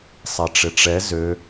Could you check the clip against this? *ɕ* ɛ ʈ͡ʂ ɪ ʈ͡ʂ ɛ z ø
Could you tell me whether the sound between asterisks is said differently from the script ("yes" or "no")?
yes